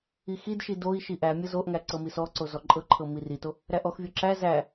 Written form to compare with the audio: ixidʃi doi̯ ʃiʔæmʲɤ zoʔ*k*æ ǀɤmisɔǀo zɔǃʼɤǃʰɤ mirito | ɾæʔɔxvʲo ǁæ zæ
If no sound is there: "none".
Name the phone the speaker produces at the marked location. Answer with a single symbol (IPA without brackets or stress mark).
ŋ